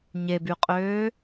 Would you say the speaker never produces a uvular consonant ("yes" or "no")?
no